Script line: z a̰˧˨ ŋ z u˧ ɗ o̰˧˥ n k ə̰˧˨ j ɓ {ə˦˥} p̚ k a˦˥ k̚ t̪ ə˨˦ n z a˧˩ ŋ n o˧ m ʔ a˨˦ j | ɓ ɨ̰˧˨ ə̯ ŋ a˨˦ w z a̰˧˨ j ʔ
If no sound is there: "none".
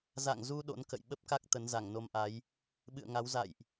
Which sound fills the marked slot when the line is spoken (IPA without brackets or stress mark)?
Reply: ə˦˥